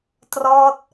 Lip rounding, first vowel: rounded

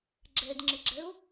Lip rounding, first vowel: unrounded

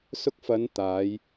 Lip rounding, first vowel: rounded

